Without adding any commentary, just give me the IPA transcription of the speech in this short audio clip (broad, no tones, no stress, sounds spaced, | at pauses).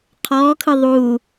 qʰ ɔː kʰ ɯ ðˤ uː